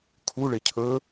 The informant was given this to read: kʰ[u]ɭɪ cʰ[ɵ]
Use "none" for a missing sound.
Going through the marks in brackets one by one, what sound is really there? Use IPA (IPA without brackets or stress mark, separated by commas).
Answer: u, ɵ